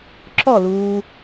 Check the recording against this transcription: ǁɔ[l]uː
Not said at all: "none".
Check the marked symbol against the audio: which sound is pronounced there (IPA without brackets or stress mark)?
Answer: l